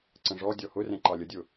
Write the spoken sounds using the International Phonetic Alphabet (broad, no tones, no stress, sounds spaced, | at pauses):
ǀ ə̃ ʐ ɔ dʲ ɔ h ʊ r ɛ̃ ǃ ɑ lʲ ə dʲ ʊ